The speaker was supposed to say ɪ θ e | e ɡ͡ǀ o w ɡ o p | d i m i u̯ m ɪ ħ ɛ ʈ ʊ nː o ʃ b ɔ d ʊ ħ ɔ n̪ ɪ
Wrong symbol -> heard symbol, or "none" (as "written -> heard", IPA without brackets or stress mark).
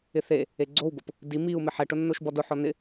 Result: none